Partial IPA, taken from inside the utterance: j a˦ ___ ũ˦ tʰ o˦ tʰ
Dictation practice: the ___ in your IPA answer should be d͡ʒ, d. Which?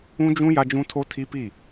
d͡ʒ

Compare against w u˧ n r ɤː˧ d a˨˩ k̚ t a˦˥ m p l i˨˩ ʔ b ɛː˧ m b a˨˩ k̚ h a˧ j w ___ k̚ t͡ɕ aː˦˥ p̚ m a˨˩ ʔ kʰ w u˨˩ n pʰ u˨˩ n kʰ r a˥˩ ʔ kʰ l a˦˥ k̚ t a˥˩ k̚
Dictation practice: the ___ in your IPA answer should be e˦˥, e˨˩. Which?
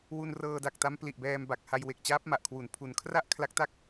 e˨˩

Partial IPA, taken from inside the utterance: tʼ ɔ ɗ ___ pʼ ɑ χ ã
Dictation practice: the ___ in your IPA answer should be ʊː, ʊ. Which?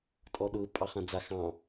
ʊː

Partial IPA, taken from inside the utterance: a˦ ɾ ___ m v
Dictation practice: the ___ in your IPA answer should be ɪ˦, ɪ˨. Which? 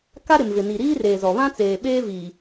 ɪ˨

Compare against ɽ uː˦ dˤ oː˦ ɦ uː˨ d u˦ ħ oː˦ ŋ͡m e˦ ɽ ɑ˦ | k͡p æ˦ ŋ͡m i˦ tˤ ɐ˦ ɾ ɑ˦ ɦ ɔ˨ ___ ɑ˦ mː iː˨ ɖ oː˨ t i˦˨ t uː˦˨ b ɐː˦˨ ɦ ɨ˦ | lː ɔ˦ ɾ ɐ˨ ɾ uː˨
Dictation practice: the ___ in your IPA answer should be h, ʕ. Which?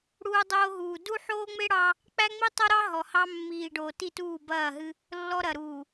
h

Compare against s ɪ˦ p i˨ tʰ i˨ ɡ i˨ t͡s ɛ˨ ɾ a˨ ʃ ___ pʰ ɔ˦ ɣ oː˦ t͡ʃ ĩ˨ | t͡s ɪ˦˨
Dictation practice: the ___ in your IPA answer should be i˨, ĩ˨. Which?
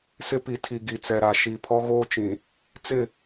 i˨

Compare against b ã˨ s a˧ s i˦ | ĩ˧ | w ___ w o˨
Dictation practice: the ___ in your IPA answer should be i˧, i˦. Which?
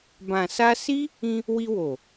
i˧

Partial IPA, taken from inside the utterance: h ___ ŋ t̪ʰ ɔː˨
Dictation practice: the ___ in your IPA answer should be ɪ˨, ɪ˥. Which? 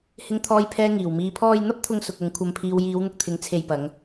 ɪ˨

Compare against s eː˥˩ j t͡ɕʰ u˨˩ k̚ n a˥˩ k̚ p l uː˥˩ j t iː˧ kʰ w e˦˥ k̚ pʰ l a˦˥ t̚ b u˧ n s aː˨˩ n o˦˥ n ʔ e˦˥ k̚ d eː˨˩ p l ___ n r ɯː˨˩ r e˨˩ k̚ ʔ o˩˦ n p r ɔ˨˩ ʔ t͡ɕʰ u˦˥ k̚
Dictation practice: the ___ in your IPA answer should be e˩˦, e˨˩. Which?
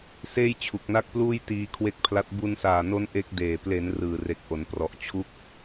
e˩˦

